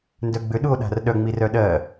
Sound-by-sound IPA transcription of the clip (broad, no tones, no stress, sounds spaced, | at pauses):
n d œ ɡ͡b ʏ ɗ u o̯ ɗ a̤ r ɗ œ ŋ͡m i r œ ɗ ɜ